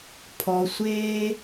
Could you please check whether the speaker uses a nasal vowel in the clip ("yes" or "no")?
no